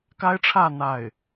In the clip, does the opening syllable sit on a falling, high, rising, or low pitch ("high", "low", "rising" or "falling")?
high